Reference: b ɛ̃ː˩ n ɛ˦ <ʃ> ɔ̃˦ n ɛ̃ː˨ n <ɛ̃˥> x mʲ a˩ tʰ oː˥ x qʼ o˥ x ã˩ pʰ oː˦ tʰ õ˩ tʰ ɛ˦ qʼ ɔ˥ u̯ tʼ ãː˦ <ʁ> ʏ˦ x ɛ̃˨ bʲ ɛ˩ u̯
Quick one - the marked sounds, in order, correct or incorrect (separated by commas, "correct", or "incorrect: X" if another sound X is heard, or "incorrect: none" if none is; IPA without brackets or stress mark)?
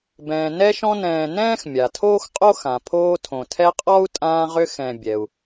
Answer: correct, incorrect: ɛ̃ː˥, correct